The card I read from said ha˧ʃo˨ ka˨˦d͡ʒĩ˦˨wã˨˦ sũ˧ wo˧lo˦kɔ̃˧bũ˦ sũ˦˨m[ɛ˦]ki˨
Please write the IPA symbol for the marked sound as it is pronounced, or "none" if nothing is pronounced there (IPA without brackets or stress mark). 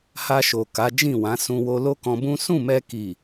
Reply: ɛ˧